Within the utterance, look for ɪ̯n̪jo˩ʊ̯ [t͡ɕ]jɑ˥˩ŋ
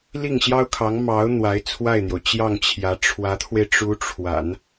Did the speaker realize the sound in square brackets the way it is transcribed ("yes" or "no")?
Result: yes